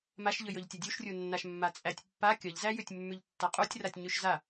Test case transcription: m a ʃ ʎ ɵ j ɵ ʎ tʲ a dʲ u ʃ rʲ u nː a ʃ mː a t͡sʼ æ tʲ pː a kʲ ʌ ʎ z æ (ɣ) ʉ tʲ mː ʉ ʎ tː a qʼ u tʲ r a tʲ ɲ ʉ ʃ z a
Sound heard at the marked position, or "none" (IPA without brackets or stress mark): j